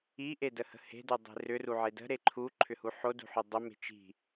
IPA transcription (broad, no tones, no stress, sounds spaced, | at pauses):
i ʔ e d ə h ə̤ h e̤ d u dˤ e̤ r ʏ r u ʕ e d ə̤ ɾ e ǃʰ u ǃʰ ʏ h u ħ o d ṳ ħ ʏ dˤ ə m e̤ t͡ʃ i̤